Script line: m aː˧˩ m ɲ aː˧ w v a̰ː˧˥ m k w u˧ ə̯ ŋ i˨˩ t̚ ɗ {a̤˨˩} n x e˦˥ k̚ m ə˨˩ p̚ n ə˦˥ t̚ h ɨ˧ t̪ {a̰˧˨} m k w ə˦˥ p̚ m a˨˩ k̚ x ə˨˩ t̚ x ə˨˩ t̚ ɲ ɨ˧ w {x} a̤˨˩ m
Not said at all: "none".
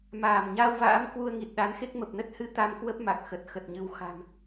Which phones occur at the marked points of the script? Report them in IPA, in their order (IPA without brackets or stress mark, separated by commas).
a˨˦, a˧, x